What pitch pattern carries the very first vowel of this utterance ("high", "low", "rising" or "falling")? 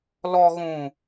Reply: low